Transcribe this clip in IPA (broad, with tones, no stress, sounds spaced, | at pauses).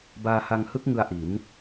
b aː˧ h a˧ ŋ h ɯ˦˥ k̚ ŋ ɯ˧ a̯ ʔ i˩˦ n